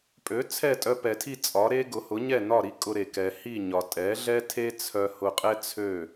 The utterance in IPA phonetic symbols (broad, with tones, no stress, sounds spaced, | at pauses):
pʼ ø˩˥ t͡sʰ ɛ˥˩ tʼ œ˧ p ɛ˩ tʰ i˥˩ t͡sʼ ɒ˩˥ ɾ e˥ ɡ ʊ˩˥ h ʊ˩˥ ɲ ɛ˥˩ n ɒ˥˩ ɾ i˥ kʼ ʊ˧ ɾ e˩ k ɛ˩ h i˥˩ ɲ ɒ˩ tʼ ɛ˩˥ ɮ ɛ˥ tʰ e˥ t͡sʰ œ˧ h ʊ˧ qʼ ɛ˥ t͡sʰ ø˥˩